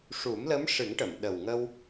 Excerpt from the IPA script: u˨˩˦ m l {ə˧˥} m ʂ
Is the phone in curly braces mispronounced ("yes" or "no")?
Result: no